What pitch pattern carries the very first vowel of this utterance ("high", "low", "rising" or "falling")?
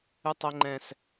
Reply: high